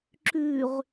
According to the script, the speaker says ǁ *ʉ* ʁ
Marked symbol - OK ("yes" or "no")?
yes